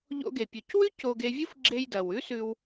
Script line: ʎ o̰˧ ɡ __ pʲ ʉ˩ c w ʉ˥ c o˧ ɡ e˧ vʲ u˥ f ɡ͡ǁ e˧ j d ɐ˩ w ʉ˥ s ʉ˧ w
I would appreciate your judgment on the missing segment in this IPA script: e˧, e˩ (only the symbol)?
e˩